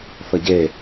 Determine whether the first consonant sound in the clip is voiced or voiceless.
voiceless